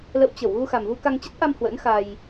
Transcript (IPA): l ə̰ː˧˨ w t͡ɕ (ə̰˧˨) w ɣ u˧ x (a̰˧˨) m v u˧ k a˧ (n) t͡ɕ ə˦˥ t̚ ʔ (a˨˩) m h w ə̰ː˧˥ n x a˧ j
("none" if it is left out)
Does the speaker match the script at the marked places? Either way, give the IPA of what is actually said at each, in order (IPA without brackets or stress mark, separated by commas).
ə˧˩, a˨˩, ŋ, a˧